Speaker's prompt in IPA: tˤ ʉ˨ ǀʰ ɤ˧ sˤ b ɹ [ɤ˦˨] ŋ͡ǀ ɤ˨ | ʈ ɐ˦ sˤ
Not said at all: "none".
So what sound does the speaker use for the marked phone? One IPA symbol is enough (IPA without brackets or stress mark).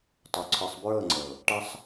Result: ɤ˦˨